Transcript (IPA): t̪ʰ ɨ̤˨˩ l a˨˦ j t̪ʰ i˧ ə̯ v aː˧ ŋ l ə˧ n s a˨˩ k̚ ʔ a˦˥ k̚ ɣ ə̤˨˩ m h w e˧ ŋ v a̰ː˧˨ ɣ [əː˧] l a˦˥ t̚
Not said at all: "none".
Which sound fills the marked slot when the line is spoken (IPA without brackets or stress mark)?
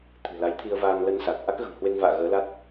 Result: əː˨˦